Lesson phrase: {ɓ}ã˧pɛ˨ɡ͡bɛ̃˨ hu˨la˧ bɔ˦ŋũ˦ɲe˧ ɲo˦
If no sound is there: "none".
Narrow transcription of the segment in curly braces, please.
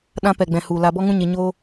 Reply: ɗ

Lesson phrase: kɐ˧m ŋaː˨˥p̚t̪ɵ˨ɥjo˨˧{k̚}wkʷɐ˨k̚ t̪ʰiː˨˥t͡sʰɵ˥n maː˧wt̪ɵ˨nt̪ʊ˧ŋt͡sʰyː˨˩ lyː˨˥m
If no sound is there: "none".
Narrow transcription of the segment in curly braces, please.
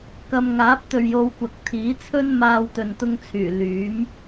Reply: none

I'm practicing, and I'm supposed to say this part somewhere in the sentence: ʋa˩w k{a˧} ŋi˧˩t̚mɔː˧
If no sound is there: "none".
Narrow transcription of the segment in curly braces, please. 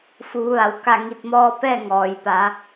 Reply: a˧˩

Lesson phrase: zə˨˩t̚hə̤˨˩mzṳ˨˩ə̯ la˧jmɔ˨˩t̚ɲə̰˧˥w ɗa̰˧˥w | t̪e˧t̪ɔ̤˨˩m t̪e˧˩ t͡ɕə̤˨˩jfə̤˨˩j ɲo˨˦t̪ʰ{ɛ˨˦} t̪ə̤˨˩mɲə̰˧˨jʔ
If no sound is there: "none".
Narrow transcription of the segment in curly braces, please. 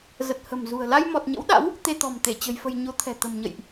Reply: ɛ̤˨˩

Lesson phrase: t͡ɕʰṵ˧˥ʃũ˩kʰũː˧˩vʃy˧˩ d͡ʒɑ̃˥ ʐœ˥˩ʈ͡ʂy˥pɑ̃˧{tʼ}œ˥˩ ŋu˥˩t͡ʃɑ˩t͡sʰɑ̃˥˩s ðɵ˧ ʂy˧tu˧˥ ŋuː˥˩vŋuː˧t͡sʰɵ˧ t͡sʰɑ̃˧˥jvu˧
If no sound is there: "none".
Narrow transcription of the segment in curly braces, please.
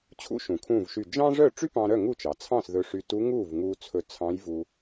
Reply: ɾ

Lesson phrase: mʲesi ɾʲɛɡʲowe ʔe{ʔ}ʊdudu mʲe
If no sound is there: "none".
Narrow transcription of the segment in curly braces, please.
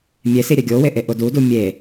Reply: ʔ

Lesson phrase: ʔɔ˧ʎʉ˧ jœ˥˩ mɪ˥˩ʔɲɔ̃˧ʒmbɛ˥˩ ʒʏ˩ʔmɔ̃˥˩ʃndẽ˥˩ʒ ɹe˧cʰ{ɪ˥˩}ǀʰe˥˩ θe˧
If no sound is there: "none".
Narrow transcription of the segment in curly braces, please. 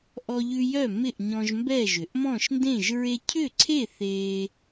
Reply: ʏ˥˩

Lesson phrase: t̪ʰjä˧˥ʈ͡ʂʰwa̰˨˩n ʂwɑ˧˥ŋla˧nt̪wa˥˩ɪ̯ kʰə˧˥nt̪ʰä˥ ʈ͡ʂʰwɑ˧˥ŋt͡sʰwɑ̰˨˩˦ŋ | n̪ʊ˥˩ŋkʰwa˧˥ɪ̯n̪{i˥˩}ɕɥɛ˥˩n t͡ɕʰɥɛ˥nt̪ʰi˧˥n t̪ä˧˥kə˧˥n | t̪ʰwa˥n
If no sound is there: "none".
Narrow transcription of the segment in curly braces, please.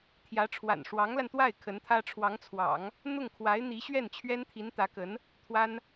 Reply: i˧˥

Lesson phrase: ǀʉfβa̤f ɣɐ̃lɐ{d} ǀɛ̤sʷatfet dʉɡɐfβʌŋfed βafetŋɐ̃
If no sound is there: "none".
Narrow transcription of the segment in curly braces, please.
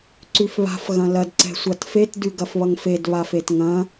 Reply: d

